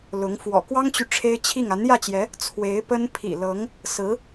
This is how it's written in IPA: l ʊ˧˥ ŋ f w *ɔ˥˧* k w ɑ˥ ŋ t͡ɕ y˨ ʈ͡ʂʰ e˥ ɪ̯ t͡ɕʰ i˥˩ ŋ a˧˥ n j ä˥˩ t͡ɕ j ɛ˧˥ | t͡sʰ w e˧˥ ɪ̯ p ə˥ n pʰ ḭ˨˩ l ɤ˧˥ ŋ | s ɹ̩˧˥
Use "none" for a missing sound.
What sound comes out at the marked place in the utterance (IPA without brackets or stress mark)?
ɔ̰˨˩